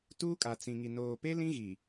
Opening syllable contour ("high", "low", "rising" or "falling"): high